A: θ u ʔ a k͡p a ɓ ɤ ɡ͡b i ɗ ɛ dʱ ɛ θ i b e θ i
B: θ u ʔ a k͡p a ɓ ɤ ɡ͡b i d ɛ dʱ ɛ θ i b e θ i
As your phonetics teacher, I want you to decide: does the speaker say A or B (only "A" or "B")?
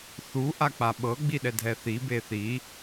A